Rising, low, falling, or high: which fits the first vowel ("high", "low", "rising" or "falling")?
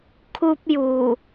high